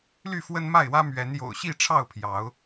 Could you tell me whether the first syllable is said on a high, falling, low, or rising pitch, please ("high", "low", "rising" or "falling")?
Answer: falling